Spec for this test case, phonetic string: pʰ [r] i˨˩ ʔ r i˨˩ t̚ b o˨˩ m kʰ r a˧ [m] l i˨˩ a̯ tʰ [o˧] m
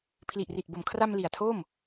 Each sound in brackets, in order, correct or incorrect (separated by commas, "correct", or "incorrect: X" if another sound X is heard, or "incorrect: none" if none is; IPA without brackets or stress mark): incorrect: l, correct, incorrect: o˥˩